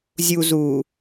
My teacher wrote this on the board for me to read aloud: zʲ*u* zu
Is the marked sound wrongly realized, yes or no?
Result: no